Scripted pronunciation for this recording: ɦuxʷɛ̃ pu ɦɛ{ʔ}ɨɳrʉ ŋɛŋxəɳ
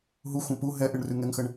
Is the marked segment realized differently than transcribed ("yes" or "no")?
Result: no